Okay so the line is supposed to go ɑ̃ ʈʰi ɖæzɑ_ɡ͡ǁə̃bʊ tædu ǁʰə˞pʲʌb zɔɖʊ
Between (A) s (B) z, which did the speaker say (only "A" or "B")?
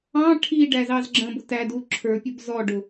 B